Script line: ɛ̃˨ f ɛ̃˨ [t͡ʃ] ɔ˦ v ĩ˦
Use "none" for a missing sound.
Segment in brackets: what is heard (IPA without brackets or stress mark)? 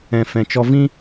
t͡ʃ